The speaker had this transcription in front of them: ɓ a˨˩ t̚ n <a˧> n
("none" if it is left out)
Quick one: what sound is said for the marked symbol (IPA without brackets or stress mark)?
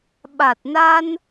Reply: a˧